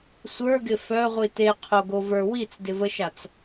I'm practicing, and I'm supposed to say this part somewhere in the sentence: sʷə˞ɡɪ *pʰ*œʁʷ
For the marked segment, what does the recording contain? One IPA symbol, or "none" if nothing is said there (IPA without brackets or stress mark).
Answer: f